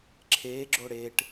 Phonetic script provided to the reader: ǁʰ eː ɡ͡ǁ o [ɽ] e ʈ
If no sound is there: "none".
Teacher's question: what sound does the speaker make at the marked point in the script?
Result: ɽ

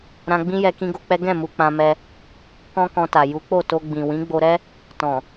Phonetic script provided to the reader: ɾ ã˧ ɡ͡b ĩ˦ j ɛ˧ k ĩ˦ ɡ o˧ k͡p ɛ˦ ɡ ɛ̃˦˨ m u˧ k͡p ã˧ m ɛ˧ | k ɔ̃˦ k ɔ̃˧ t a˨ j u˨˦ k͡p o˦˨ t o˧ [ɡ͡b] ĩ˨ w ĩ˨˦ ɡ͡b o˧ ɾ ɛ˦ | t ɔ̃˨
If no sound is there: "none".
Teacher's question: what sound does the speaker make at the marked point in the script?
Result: ɡ͡b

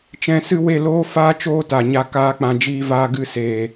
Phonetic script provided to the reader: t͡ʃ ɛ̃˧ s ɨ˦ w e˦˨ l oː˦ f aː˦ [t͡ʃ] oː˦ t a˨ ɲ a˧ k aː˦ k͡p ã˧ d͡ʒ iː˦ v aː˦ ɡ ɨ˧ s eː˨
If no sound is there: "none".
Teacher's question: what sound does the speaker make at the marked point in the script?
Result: t͡ʃ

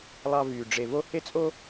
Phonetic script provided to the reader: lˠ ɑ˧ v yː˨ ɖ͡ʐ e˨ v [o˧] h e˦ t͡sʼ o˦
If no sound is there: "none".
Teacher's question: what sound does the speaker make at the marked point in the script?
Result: o˧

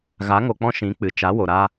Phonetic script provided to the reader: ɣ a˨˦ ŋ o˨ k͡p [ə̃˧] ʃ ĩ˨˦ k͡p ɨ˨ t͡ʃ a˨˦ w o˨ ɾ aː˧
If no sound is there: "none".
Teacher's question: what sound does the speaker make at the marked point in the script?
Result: ɔ̃˧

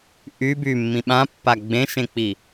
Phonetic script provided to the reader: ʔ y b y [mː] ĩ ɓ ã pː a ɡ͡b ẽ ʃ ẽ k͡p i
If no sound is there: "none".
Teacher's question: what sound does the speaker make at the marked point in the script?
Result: mː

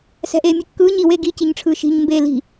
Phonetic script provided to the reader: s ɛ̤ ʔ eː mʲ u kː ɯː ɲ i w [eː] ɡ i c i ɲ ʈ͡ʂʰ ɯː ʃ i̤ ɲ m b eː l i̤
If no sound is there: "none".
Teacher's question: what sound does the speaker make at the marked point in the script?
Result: eː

